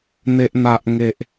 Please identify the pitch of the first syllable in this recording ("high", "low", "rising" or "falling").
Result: low